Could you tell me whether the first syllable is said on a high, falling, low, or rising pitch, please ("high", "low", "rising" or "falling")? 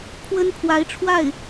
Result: high